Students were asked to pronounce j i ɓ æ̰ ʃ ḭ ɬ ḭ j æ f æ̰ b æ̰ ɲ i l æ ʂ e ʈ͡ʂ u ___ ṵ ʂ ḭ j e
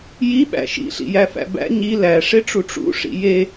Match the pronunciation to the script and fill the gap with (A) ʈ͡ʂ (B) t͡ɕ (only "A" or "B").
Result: A